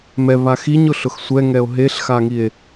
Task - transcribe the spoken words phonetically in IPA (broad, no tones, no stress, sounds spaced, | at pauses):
m ɛ β a x i ɲ ʊ ɬ ʊ x sʷ ɛ ŋ ɛ o̯ ɦ e ɬ x a ŋ i e̯